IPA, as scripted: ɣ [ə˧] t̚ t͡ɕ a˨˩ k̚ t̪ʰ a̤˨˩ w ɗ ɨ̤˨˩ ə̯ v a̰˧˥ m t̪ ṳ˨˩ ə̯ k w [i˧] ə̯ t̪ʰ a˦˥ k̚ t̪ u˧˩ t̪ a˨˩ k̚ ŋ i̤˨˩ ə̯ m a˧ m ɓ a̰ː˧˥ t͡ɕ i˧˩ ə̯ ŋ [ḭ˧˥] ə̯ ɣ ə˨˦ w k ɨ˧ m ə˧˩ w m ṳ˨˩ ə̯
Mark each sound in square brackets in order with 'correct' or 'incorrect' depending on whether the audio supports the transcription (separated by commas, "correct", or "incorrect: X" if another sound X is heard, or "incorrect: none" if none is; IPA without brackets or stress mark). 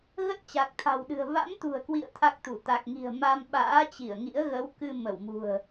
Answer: incorrect: ə˦˥, incorrect: ḭ˧˨, correct